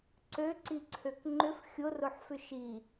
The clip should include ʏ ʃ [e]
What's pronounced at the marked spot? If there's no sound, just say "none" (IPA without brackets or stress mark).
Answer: i